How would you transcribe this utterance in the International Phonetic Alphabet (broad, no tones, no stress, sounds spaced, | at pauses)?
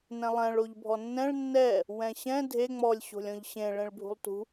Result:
n ɛ̃ lˠ ɛ̃ ɭ o ʎ bʱ ɔ nː ɛ̃ ɭ nː ɛ | w ɛ̃ ɕ ɛ̃ dʱ e ŋ͡m ɔ lʲ ɕ o̤ lʲ ɔ̃ ʎ ɕ ẽ ɭ ẽ ɭ bʱ ṳ lˠ t ṳ